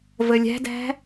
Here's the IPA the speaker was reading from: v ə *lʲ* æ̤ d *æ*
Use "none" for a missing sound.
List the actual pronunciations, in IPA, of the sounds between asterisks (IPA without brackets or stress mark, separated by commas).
lʲ, æ̤